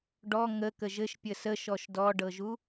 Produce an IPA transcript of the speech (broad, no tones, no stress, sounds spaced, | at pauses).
ɖ ɔ ŋ ə k ə ʒ ɘ ʃ pʲ ə s ə ʃ ɔ ʃ d ɔ ɖ ɤ ʒ u